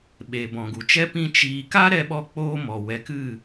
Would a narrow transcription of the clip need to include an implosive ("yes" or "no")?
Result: yes